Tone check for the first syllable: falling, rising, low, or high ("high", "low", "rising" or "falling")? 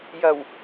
low